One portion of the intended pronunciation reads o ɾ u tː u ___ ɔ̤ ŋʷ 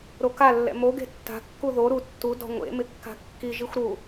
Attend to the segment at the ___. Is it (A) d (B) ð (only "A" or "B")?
A